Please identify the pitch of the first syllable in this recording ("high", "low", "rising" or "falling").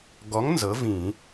rising